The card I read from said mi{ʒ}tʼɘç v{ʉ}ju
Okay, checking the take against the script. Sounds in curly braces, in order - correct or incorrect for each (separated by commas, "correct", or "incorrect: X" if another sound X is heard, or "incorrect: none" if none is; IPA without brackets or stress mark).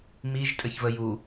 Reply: correct, incorrect: ə